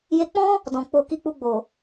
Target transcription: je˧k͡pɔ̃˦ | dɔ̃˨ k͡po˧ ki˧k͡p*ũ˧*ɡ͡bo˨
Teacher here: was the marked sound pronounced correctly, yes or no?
no